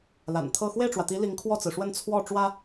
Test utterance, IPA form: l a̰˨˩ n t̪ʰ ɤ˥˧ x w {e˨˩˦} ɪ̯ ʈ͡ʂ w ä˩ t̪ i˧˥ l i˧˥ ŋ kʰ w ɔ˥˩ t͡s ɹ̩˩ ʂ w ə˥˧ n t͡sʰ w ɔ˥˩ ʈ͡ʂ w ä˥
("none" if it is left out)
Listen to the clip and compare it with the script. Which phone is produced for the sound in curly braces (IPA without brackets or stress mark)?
e˥˩